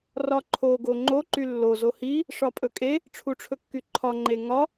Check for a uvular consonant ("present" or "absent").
absent